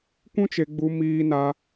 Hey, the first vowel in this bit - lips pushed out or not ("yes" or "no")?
yes